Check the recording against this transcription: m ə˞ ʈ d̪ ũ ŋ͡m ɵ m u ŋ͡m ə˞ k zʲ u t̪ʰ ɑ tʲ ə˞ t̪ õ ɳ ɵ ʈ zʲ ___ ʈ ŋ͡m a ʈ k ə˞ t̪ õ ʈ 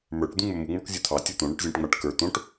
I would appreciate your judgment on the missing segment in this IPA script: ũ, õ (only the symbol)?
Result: ũ